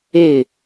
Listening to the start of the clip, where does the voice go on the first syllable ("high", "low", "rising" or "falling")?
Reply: falling